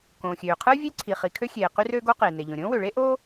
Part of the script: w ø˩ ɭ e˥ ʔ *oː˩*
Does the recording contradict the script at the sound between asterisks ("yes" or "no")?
yes